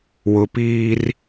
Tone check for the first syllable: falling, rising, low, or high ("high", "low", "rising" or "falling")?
low